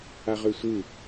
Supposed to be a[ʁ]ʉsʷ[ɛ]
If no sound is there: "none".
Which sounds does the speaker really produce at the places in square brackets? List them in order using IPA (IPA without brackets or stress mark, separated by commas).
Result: ʁ, ɨ